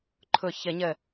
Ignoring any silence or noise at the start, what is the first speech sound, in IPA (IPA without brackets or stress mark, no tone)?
ǃʰ